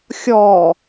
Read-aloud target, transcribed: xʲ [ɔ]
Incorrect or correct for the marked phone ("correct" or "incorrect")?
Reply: correct